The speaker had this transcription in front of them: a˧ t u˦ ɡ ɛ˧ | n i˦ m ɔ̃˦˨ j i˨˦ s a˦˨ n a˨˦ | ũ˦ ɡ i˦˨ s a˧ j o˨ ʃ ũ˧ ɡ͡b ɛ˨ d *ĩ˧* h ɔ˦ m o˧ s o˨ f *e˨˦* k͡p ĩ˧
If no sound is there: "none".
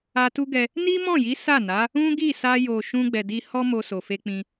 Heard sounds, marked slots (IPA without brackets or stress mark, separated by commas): i˧, e˧